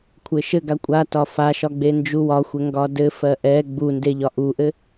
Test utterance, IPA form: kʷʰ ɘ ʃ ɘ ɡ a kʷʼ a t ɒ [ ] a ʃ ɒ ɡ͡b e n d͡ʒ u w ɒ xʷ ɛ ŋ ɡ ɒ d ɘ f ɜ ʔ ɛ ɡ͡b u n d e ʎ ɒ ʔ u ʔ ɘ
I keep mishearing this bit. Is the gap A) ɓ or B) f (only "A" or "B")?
B